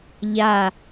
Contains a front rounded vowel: no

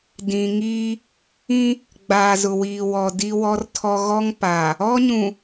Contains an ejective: no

